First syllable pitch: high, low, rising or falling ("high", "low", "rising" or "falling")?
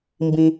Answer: low